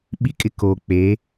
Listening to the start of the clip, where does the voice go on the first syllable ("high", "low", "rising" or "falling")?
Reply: high